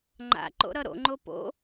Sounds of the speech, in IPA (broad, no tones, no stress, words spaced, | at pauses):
ŋ͡ǃa̰ ǃo̰ɾʌɾo̰ŋ͡ǃo po̰